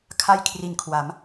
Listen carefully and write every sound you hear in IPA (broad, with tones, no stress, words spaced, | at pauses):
kʰa˥˩jkʰri˨˩nkʰwa˩˦m